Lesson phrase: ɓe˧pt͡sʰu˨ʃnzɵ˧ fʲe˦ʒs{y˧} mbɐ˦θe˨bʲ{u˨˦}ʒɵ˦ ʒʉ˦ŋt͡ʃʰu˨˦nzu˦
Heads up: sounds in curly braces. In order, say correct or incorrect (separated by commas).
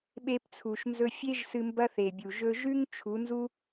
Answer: incorrect, incorrect